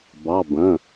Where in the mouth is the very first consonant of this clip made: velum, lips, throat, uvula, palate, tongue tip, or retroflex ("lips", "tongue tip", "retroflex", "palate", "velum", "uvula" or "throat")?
lips